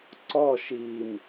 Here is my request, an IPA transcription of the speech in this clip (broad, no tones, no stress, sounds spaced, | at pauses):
ǀ ɔ ʃ i m